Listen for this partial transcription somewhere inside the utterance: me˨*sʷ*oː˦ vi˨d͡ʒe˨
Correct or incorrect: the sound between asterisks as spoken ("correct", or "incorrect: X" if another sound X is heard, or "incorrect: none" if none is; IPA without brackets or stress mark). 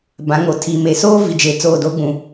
incorrect: s